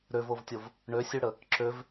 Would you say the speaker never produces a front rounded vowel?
no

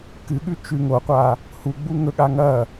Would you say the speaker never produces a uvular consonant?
no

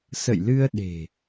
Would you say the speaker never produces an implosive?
no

